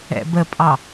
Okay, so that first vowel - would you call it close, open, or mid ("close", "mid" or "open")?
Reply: mid